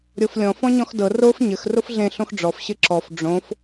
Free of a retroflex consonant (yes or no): no